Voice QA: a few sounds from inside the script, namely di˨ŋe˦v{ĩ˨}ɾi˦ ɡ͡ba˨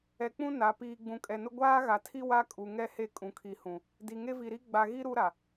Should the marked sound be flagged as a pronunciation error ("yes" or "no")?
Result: yes